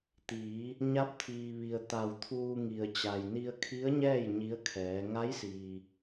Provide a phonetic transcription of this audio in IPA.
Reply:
t̪ iː˩˧ | ɲ a˧˥ p̚ t̪ʰ iː˩ ʋ i˩ ə̯ t̪ a˩ w t̪ʰ uː˧ ŋ i˩ ə̯ t͡ɕ a˩ j n i˧ ə̯ kʰ i˧˥ ə̯ ɲ ɛː˥˨ j ɲ i˧˥ ə̯ kʰ ɛː˩˧ ŋ a˧˥ j s iː˩

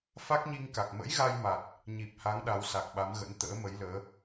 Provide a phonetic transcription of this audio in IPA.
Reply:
f a˦˥ k̚ ɲ i˧ ŋ k a˨˩ k̚ m ə̰˧˥ j ɣ a˧ j m a˨˩ t̚ | ɲ i˨˩ p̚ h a˨˦ ŋ ɗ a˨˦ w s a˨˩ k̚ ɓ a˨˦ m ɣ ə̰˧˥ n t̪ ə̰ː˧˥ m ə˨˦ j l əː˨˦

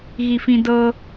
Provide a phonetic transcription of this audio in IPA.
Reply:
ɣ i f ĩ d ɤ

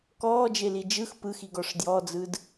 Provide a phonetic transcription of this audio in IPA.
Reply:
k ɔː d͡ʒ e l i d͡ʒ ɯ x p ɯ x i ɡ ɔ ʂ d j ɔ d͡z ɯ d

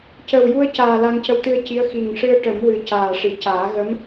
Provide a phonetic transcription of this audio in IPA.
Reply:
c ə˨˩ w j u˧ ə̯ c aː˨˩ l a˧ ŋ c ə˧˥ w t̪ ɨ˧ ə̯ c i˧˥ ə̯ x i˨˩ ŋ ʂ ɨ˧ ə̯ ʈ ə˨˩˦ m w ɨ˨˩ c aː˨˩ ʂ i˨˩˨ c aː˨˩˦ ɣ ə˧˥ m

